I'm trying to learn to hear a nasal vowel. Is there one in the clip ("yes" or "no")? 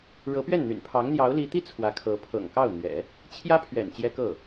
no